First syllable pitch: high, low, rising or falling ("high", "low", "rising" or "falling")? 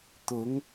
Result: rising